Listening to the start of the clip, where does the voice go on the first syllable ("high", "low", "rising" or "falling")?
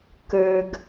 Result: low